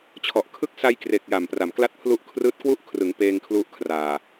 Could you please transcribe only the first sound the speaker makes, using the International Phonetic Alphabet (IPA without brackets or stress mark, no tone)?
t͡ɕʰ